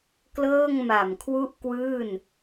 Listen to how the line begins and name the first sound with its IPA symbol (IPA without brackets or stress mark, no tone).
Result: k